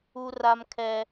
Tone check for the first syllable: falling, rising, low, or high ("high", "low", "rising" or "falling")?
high